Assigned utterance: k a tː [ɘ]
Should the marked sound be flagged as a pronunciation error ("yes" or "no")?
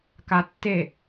yes